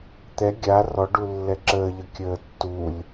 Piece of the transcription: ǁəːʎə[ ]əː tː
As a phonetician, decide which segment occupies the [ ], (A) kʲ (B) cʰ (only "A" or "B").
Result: A